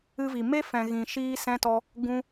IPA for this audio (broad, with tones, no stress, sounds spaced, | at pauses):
ɨ˦ v i˨ m e˦ f ɛ̃˨ ɣ ĩ˨ ʃ iː˦ s ɛ̃˦ t ɔ˦ | ɡ ũ˦